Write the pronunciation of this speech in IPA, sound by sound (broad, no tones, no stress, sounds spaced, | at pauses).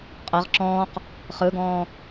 qʼ ɤ ʁ ǁ ɔ̃ː q | χ ɯ ɡ ɔ̃ː